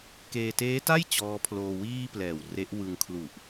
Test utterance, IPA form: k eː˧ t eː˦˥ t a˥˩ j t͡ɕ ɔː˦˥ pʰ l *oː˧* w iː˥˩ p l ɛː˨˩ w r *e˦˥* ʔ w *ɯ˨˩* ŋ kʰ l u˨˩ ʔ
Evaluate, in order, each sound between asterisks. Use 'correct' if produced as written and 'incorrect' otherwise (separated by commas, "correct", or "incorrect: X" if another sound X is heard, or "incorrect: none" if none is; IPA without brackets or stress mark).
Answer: correct, correct, incorrect: ɯ˧